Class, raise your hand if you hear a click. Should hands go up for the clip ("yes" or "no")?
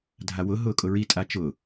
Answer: no